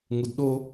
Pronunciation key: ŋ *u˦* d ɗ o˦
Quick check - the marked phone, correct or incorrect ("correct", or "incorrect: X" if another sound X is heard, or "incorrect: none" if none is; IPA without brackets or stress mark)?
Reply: incorrect: u˨